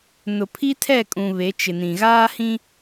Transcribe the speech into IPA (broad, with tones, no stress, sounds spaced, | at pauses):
n ʊ˨ pʰ i˦ tʰ ɛ˦˨ kʼ ũ˨ β e˨˦ t͡ʃ ɪ˨ n ĩ˨ ɣ aː˦ h ĩ˦